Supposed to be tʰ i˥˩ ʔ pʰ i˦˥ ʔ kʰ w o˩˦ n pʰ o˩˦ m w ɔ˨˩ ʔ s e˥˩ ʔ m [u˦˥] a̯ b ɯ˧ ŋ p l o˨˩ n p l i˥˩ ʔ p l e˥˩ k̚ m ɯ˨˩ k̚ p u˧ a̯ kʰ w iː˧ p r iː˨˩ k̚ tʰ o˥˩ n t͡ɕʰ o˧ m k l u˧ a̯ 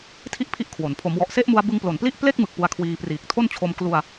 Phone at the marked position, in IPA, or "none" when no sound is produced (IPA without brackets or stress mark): u˧